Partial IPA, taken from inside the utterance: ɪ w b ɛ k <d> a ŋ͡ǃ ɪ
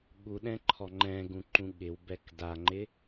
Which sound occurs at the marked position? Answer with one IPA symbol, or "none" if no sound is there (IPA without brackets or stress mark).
d